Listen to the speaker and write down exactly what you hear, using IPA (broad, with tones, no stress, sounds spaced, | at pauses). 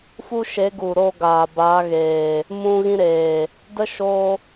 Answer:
f u˦ ʃ e˨˦ ɡ u˨ ɾ oː˧ ɡ aː˨ b a˨˦ ɣ eː˨ | m ũ˧ ɣ ĩ˦ ɾ eː˨ | d ə˦ ʃ oː˦